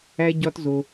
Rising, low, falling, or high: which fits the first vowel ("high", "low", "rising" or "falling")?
high